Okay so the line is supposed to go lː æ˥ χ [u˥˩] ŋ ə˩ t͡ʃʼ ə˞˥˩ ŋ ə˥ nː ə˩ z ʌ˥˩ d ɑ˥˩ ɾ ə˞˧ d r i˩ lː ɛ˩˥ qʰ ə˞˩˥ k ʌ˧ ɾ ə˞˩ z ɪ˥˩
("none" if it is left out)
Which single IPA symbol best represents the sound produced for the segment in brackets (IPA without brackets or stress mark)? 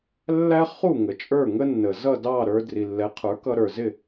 u˥˩